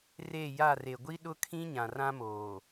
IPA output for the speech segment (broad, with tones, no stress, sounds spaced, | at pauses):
r e˦˨ j a˦˨ r e˨ ɡʷ i˦ ɗ ʊ˦ kʰ ĩ˦ ɲ ã˨ r ã˦ m oː˨